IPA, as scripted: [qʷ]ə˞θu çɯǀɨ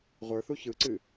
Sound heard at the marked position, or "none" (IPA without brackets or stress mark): ʁʷ